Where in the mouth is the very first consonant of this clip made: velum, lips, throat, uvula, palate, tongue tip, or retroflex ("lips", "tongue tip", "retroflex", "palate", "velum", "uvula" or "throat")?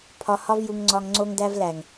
lips